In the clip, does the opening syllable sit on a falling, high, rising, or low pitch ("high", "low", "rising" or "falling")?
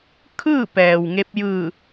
falling